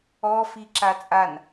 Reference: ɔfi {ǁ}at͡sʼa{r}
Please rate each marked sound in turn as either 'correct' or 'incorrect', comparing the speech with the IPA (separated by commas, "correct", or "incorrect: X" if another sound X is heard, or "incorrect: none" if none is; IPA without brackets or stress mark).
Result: correct, incorrect: n